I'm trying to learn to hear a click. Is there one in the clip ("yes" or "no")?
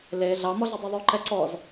yes